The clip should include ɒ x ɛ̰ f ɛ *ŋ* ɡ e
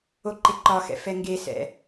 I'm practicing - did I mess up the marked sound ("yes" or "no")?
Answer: no